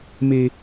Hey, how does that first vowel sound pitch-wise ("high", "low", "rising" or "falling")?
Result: high